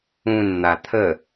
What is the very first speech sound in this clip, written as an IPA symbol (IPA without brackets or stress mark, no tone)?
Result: ũ